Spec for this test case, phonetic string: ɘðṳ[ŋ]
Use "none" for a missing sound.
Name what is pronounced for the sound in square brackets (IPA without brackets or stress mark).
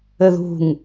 ŋ